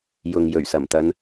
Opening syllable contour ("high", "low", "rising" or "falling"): low